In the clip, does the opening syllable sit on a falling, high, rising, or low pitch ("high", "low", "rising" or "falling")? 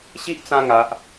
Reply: high